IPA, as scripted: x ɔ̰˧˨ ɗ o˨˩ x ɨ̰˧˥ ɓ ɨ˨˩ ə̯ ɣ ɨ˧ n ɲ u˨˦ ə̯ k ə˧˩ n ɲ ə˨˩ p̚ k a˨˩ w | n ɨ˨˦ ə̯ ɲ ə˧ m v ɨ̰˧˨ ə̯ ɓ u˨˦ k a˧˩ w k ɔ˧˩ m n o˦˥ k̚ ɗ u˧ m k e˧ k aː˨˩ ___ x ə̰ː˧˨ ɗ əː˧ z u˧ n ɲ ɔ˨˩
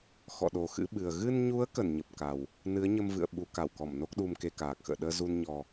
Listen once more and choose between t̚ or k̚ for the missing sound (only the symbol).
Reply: k̚